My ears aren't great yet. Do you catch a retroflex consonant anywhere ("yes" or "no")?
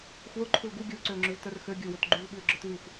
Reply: no